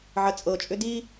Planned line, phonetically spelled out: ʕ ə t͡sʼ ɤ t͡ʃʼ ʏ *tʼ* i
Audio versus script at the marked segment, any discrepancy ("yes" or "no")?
yes